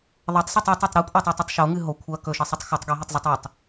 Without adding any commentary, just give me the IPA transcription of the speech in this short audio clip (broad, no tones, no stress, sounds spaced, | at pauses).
ðˤ ɐ tˤ s ɨ tˤ a tˤ e tˤ ɾ u kʷʼ e tˤ o tˤ ɨ tˤ ʃ o ŋ ɨ ɦ o kʷʰ ɐ k ɵ ʃ e sˤ ɵ tˤ x o tˤ ɡ i ɦ ɨ tˤ zˤ o tˤ ʉ tˤ